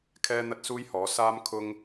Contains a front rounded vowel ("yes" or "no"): no